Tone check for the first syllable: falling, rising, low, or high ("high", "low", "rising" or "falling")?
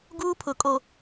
high